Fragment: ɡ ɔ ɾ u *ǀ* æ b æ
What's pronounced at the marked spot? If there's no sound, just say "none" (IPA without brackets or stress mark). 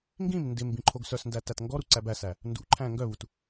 ǀ